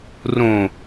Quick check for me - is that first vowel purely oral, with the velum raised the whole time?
no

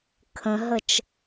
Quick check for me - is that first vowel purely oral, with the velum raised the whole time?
no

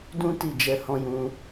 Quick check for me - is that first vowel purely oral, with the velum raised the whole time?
no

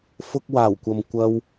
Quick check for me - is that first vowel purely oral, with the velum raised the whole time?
yes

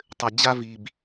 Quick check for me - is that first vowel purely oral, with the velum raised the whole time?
yes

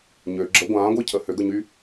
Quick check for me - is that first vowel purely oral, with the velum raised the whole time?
yes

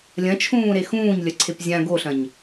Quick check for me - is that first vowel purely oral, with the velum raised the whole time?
no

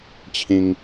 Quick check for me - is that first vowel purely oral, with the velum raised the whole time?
no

